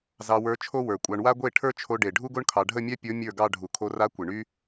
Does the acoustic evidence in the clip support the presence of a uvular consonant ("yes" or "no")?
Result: no